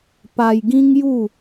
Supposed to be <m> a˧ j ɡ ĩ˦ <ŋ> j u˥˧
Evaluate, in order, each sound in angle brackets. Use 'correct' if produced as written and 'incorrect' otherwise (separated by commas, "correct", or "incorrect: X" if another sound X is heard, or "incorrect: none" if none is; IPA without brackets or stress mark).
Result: incorrect: p, correct